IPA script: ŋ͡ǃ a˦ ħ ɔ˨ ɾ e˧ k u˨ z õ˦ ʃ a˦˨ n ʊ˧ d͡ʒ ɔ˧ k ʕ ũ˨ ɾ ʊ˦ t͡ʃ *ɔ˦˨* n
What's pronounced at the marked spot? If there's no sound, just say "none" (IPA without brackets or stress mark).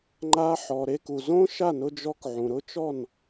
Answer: ɔ˦˨